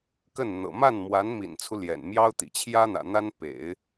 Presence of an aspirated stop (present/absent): present